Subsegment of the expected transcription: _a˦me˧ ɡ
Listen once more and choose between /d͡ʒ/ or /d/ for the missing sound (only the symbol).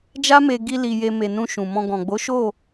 d͡ʒ